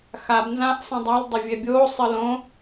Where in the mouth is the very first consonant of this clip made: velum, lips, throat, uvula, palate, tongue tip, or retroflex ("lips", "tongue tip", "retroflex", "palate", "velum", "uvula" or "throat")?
velum